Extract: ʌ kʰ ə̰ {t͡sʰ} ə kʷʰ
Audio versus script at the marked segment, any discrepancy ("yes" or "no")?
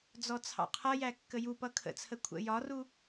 no